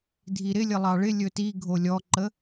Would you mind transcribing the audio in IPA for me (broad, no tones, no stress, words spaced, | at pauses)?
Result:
dʱiɾɪlʲəlˠɑ ɭɪ lʲɵti ɡʱolʲɔǃə